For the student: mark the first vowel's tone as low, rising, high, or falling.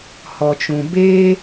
low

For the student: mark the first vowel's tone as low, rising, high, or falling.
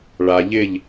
low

